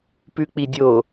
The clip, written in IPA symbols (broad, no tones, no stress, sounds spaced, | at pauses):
p ʉ k͡p i dʲ o